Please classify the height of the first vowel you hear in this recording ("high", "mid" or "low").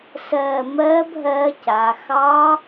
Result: mid